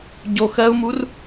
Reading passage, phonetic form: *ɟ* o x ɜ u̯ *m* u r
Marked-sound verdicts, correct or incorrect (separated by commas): correct, correct